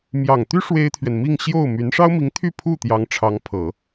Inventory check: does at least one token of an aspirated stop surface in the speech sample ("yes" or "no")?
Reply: yes